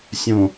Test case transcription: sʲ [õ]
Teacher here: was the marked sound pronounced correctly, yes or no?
yes